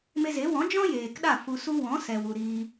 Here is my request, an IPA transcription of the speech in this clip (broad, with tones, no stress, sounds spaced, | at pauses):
m e˧ z e˨˦ w ɔ̃˨˦ d͡ʒ ɔ̃˦ j eː˨ k ɗ a˦˨ f u˧ s u˦ w ɔ̃˨˦ s ɛ˨ w u˨ ɾ iː˧